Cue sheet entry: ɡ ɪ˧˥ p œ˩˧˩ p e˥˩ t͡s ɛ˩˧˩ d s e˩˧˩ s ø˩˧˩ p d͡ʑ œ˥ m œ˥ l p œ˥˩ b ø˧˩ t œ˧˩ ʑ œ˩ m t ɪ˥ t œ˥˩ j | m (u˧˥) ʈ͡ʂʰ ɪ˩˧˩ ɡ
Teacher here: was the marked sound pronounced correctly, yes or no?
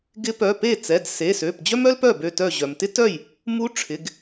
yes